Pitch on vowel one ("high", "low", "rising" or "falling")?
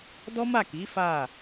high